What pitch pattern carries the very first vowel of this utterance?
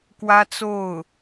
high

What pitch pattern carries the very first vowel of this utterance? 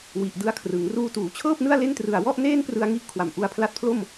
low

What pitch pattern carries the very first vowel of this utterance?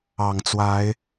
low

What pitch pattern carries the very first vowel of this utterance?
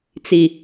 low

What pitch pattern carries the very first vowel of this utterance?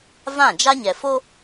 falling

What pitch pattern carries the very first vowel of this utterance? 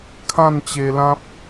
falling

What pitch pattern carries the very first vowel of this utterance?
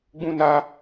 high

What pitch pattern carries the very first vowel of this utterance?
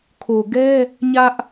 low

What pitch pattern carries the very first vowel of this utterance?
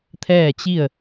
falling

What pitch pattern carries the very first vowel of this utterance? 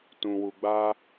low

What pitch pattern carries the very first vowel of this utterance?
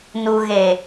low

